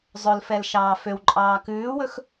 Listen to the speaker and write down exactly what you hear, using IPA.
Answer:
zˤɵlfɛl ʃɑːføwǃʼɑː kʉːwɵx

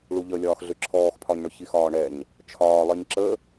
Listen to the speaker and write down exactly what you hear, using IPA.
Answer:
ɭuʎəlʲɒːxɮʏ ǁʰɔːxpʰɒɲɳʏ çixɒːɳɛɲ | t͡ʃʰɒːlˠiɲ ǁə

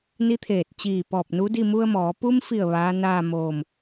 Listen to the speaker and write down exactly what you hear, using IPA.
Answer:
ni˧˥t̪ʰeː˧˩t̚ t͡ɕiː˧˩pɔː˧˩p̚nu˧˥di˥˨ mu˧ə̯mɔː˩˧ pu˧mfi˧˩ə̯ ʋaː˧˥naː˥˨ moː˧˩m

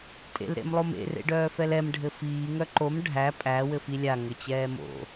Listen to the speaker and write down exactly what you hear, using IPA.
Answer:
tʼḛlɾḛmlˠomḛ rḛɖœːfɛlɛm ɖʱɘfiː ŋœǃom ɖʱæ pʼæ wɘfilʲa ŋɘt͡ɕɛːmo̰

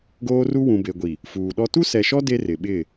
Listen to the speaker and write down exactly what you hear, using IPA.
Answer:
ɡoː˦ru˦ wũ˨be˨ɡʷi˨ | fuː˨ɗɔ˦ tu˦sɛ˨ʃɔ˦ de˦ rɪ˨ɓɪ˦˨

